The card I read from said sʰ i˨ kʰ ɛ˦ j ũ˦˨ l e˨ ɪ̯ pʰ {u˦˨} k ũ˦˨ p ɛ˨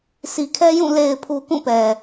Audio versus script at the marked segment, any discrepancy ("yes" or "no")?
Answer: yes